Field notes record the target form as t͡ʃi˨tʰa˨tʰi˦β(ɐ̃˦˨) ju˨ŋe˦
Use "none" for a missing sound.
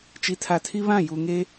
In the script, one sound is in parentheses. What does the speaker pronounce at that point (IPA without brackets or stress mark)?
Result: ã˦˨